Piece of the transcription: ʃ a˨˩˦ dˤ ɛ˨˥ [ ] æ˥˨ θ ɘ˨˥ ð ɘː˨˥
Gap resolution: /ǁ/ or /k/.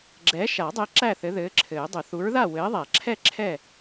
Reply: ǁ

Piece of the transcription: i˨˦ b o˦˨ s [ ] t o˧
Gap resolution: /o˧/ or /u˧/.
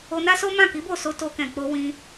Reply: o˧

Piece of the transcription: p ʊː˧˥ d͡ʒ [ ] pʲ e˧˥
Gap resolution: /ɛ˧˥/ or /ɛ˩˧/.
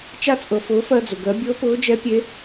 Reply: ɛ˧˥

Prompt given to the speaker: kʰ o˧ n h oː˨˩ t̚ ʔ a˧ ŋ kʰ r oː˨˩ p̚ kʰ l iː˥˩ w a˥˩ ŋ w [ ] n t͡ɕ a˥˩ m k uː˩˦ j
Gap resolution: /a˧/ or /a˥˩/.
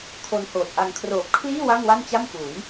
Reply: a˥˩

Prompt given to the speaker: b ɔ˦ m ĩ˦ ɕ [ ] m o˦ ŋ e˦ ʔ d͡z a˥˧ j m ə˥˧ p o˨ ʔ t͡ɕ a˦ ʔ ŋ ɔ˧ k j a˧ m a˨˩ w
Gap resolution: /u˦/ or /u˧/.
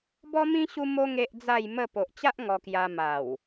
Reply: u˦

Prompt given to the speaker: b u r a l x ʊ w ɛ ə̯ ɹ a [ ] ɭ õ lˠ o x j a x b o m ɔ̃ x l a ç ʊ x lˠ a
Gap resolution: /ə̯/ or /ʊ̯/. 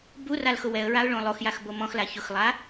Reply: ʊ̯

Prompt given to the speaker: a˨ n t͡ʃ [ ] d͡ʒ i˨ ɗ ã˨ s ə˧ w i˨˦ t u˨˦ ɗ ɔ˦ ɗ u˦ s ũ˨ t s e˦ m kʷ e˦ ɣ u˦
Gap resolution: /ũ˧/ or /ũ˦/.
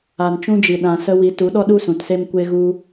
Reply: ũ˧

